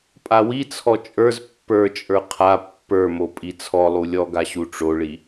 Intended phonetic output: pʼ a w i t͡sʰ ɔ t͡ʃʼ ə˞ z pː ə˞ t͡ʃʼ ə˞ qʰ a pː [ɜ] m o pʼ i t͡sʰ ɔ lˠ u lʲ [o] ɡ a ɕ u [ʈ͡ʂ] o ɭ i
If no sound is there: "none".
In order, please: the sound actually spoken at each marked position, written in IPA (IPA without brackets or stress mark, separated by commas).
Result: ə˞, ɔ, ʈ͡ʂ